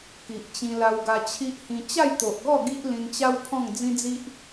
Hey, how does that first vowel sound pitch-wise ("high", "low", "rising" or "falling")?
low